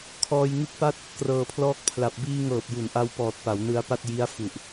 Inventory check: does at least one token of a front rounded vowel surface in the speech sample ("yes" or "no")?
no